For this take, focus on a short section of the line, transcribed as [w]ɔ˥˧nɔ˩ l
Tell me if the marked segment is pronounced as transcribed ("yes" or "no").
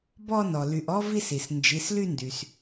no